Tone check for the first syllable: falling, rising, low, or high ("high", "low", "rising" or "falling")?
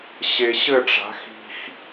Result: low